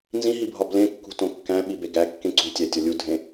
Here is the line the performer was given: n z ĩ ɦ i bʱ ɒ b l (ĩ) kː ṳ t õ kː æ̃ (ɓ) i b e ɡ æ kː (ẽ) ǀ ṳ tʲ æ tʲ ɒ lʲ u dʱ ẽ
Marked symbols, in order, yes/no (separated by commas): no, yes, yes